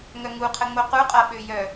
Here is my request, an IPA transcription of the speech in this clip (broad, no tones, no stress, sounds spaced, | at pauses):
ŋ œ ŋ u qʰ ə ŋ͡m o q u qʼ a ɓ ø j œ